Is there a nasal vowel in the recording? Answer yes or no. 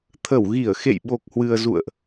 no